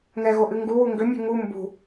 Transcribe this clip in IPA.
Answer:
ŋ ɛ ɣ o ʔ ɨ ŋ ɡ u w u ŋ ɡ ʏ mʲ ṳ ŋ u m b ṳ

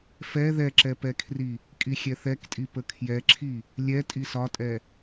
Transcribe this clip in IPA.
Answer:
f ɛ ð ɛ ǁ ɛ p ɛ kʰ r i | kʼ i xʲ ɛ θ ɛ k tʼ i p ə kʰ j ɛ ǁʰ i | lʲ ɛ tʼ i s ɒ tʼ ɛ

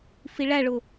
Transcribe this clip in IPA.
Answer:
f i ɭ æ ɭ ʊ

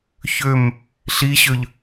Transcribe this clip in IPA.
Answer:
ç ø m | ɬ i ɕ ø ʎ

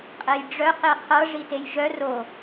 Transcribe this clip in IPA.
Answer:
qʼ ɛ j ɖ͡ʐ œ q e qʰ ɤ ʐ i t e j ʒ œ r o

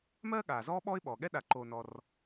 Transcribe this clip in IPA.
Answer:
m ɜː˥ ɠ aː˩ z ɔː˥ ɓ ɔː˥ ɪ̯ ɓ ɔː˩ ɠ ɛ˥ ɗ a˨ ǃ oː˨ n ɔ˨ r

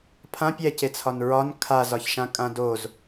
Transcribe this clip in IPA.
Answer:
pʰ ã pʲ ɛ c e t͡sʰ ɒ n ɹ ɒ n kʰ a z ɒ ç ʃ ã kʼ ã d o z

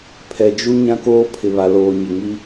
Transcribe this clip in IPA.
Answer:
pʰ ɛ˨ d͡ʒ u˦ ɲ ã˦ k oː˦ pʰ ɪ˨ β a˨ l oː˨ ɲ ɪ˨ ŋ i˦

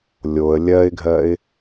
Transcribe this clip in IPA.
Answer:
lʲ o ə̯ lʲ ɜ ɪ̯ ɡʱ ɜ ɪ̯

